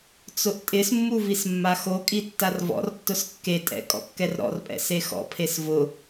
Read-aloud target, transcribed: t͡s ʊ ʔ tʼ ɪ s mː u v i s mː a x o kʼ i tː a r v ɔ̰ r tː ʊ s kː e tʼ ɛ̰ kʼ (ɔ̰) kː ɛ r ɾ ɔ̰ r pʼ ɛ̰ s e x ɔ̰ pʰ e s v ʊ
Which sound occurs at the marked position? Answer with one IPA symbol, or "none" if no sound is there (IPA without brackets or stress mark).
ɔ̰